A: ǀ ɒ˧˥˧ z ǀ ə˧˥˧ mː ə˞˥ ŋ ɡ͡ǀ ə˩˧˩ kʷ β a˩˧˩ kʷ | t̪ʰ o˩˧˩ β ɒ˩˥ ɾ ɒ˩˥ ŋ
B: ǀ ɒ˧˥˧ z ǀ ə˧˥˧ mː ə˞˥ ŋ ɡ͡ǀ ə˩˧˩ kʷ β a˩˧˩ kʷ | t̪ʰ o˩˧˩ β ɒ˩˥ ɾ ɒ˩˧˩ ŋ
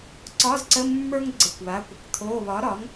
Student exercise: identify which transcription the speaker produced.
A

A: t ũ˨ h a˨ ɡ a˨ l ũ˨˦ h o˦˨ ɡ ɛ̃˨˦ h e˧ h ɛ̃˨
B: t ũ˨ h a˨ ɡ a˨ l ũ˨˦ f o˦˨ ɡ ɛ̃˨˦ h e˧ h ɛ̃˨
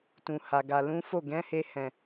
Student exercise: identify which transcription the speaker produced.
B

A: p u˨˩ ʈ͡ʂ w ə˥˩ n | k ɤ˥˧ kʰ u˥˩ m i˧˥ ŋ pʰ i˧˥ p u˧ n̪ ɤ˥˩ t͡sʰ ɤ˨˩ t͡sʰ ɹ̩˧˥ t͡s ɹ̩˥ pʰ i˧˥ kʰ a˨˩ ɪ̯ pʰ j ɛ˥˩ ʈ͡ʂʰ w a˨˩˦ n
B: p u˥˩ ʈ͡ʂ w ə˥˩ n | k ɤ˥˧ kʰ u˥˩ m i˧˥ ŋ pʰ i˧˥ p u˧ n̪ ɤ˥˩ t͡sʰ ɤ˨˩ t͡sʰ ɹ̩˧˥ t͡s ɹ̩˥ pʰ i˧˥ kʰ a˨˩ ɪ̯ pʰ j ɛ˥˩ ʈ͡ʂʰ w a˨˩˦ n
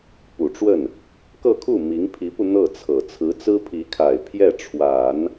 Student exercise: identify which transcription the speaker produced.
A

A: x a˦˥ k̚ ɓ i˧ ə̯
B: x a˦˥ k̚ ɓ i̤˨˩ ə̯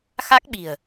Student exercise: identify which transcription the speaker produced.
B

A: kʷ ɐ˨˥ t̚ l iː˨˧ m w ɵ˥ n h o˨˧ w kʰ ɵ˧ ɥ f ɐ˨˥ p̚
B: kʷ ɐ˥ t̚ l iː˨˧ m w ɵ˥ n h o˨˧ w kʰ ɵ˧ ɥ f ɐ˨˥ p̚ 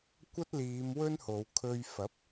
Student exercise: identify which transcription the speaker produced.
B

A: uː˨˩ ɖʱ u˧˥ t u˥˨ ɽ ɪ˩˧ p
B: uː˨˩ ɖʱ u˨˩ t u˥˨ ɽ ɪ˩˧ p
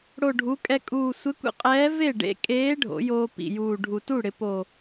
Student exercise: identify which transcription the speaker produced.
B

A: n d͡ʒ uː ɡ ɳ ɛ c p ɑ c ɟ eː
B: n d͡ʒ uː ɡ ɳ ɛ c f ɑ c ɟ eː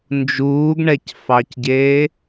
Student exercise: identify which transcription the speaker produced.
B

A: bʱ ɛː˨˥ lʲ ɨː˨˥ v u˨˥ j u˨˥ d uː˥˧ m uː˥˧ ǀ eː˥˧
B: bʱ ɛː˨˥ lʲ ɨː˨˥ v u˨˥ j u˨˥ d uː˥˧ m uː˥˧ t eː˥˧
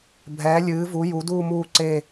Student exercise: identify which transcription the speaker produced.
A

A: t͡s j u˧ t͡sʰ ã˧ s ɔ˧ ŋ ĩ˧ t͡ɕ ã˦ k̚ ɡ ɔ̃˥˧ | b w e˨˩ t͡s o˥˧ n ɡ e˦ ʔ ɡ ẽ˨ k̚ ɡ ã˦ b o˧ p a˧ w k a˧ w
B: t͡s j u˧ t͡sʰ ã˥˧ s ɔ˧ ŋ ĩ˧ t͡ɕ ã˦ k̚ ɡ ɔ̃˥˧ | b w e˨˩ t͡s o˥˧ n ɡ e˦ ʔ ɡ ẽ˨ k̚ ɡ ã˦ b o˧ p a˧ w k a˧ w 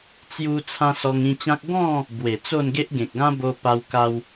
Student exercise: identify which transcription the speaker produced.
A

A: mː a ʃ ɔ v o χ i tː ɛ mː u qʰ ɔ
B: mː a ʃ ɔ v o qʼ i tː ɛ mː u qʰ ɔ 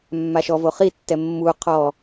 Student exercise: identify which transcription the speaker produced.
A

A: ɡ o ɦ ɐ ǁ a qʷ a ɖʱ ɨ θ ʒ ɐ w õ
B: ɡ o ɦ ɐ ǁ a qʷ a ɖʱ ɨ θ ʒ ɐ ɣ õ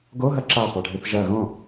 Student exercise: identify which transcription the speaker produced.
B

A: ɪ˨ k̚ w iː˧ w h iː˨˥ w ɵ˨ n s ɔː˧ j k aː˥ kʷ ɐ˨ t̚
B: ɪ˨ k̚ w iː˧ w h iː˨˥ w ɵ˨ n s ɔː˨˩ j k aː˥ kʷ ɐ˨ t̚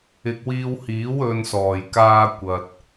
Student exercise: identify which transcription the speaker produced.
B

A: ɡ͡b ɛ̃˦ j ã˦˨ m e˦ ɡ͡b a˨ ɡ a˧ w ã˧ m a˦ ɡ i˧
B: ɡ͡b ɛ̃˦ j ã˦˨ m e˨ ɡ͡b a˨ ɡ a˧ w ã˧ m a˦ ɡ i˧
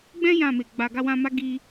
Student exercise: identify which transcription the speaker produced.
B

